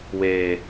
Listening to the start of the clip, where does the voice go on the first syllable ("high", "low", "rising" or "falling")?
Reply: low